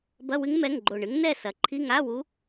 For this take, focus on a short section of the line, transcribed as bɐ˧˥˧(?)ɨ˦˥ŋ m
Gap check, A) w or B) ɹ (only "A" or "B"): A